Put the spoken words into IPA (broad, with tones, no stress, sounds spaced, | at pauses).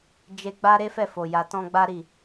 d͡ʒ e˧ ɡ͡b a˦ ɾ e˦ f ɛ˦˨ f o˨ j a˨ t ɔ̃˧ ɡ͡b a˦ ɾ i˦˨